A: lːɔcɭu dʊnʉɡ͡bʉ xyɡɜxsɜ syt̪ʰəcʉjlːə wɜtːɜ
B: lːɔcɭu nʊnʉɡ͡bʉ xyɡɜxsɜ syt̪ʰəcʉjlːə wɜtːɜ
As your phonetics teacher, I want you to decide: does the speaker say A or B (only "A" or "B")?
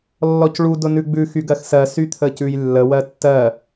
A